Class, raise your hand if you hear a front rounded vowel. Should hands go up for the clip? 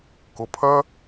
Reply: yes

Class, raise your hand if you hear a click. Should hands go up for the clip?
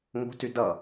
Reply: no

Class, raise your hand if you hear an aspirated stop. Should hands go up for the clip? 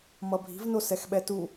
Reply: no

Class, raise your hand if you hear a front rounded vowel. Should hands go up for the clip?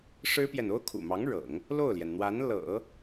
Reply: no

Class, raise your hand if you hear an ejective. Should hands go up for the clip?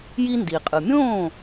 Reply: yes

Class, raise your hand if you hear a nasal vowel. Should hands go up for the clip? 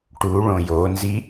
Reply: yes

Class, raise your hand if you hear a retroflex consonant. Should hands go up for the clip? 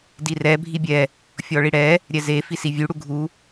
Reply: yes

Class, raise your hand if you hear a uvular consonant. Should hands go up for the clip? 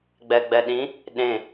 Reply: no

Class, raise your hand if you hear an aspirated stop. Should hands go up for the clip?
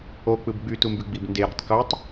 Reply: no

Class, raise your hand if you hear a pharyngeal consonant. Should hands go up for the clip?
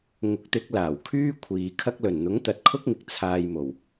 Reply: no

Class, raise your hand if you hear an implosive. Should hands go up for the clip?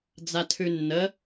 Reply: no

